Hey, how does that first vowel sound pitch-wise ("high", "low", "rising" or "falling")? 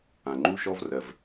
low